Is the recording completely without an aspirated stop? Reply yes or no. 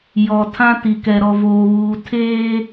no